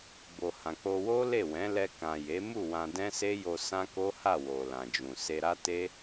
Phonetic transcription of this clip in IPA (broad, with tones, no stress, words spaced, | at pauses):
bo˨hã˨k͡po˧ wo˦ le˦˨wɛ̃˨˦ lɛ˧ kã˨ je˨˦ mu˦˨ wã˧ dɛ̃˦se˦jo˧ sã˦ko˦ha˦˨ wo˨ lã˨d͡ʒũ˨ se˧ɾa˦ te˦